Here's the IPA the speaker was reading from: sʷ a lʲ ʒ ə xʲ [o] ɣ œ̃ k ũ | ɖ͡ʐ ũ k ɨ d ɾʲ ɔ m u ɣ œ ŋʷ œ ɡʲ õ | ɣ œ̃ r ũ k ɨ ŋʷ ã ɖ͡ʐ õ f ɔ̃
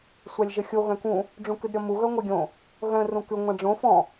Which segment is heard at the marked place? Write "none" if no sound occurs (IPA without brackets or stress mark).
o